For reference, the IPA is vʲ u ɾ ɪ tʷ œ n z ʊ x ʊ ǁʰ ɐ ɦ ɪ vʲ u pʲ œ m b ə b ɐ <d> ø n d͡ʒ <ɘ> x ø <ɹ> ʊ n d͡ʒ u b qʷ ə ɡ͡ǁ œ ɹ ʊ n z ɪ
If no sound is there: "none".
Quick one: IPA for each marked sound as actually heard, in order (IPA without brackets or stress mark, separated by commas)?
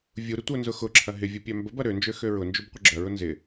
ɾ, ø, ɹ